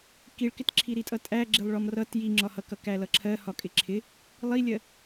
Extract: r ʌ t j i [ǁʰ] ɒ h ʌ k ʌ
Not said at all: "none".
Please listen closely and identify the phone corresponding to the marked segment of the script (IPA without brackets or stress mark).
ŋ͡ǁ